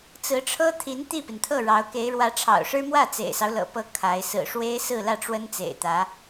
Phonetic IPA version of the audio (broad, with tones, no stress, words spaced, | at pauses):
t͡sɹ̩˧˥ʈ͡ʂʰɤ˥ t̪ʰi˧˥n t̪i˥˩pi˩nt̪ʰɤ˥˩ ɻɑ˧˥ʊ̯ke˧˥ɪ̯ ɻwä˧˥ʈ͡ʂʰɑ̰˨˩ʊ̯ʂɻ̩˥mwä˥˩ t͡sḛ˨˩ɪ̯sɑ˦ʊ̯lɤ̰˨˩pɤ˧˥ kʰa˧˥ɪ̯ sɹ̩˨˩ʂwe˥ɪ̯ sɹ̩˥˧lä˥˩ʈ͡ʂwə˥n t͡sḛ˨˩ɪ̯t̪ä˧˥